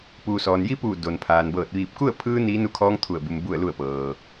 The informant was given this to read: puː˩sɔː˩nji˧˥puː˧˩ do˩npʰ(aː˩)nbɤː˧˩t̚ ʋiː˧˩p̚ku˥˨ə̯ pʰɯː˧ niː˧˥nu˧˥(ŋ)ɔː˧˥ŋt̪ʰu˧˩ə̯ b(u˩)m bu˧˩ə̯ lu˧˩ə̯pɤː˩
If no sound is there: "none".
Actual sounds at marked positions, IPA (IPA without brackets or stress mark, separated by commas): aː˩, kʰ, u˩